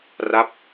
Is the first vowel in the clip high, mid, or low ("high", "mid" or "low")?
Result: low